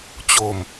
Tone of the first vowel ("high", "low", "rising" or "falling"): low